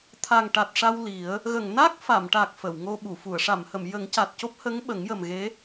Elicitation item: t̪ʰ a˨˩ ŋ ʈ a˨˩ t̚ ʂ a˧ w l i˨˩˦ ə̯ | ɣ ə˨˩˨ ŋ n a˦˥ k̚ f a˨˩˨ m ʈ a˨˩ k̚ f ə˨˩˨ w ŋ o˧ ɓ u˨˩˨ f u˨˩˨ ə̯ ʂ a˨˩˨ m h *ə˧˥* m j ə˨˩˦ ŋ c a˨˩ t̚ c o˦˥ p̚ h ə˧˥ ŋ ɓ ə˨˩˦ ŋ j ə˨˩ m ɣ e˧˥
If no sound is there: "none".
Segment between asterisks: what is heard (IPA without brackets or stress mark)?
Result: ə˨˩˨